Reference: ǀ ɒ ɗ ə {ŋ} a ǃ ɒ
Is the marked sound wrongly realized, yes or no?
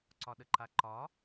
yes